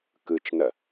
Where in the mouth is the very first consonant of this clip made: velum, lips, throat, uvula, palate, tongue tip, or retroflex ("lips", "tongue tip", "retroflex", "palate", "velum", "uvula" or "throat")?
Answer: velum